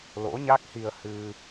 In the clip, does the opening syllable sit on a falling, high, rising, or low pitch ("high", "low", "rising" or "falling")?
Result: rising